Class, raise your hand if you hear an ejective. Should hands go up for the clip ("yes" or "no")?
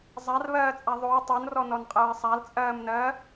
yes